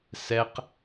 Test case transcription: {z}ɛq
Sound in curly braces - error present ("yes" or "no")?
yes